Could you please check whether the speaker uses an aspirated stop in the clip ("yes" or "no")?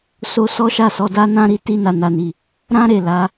no